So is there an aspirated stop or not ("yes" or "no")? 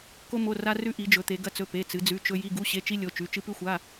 no